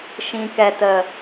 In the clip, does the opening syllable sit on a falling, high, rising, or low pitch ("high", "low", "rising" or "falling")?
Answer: low